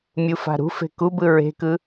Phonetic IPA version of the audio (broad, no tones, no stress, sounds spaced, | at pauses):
mʲ u f a̤ ɾ ṳ f e̤ k u b ɯ ɹ e̤ k ɯ